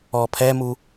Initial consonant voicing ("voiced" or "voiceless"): voiceless